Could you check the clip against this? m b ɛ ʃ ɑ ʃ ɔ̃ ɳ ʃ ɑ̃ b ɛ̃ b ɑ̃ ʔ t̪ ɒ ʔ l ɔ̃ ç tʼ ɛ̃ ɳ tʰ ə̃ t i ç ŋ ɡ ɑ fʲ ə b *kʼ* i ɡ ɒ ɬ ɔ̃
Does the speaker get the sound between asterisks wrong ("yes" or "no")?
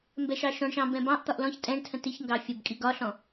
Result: no